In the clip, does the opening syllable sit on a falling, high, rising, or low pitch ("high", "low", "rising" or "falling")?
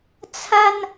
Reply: high